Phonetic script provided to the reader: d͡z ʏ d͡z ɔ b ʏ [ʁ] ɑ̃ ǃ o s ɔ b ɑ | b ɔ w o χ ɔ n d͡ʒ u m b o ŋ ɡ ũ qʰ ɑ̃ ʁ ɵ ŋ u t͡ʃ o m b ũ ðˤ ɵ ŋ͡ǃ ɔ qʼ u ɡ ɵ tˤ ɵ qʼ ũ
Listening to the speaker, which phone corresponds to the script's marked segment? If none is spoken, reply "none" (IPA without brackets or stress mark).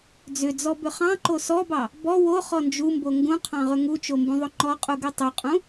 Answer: χ